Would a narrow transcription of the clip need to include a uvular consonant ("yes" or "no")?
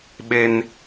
no